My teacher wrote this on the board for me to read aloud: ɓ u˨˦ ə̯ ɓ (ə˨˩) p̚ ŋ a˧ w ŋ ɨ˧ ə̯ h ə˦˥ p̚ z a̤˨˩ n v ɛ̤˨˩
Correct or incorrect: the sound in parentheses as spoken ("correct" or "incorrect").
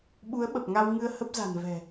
correct